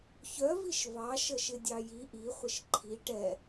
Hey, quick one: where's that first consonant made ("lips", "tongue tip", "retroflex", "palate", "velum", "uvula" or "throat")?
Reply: palate